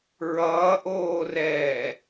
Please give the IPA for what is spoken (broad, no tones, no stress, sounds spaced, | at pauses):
ɹ ʌː ʔ oː r ɛː